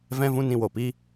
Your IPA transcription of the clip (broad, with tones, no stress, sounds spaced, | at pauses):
v ɛ̃˦ v ũ˦ n ĩ˧ w o˨ p i˦